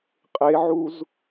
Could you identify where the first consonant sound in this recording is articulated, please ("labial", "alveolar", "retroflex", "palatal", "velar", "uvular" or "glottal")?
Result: uvular